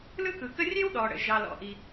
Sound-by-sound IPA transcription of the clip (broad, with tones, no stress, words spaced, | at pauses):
lɯ˥kɯ˩kə˥ rʲe˥wɗɔ˩ɽə̰˩ ʒɑ˩lɔ̰˩ʔi˩